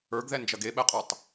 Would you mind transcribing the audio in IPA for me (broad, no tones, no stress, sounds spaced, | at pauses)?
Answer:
ə˞ ɡ ð ɛ n d͡ʒ ɐ ɡ e ɓ ɛ qʼ ə˞ tˤ